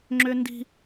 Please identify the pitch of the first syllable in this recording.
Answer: high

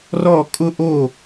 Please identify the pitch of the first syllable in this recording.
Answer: falling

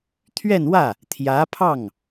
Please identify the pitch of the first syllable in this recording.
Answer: falling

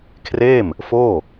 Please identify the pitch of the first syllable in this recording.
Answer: falling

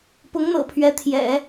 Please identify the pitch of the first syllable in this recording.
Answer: rising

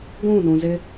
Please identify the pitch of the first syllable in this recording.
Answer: falling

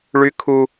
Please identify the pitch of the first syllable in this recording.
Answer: high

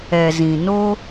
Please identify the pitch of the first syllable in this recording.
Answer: low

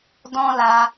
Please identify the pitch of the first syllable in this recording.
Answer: high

